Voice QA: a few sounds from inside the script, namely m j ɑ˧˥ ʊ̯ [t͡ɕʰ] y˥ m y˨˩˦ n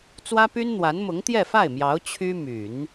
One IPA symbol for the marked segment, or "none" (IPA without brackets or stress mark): t͡ɕʰ